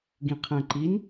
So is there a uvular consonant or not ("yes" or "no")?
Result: yes